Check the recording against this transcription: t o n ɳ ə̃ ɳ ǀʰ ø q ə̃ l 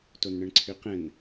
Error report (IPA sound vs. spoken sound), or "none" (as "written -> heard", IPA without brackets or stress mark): l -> n